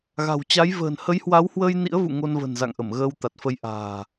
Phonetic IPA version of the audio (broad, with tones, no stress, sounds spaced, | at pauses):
ɣ a̤˨˩ w t͡ɕ a˨˦ j v ə̤ː˨˩ n h ə˨˦ j h w a˨˦ w h w əː˧ j n ḭ˧˥ ə̯ v ṵ˧˨ ŋ o˧ n v ə̤˨˩ n z a̰˧˨ ŋ ʔ ə˧˩ m ɣ əː˧ w t̪ a˨˩ t̚ f ə˧ j ʔ a̤ː˨˩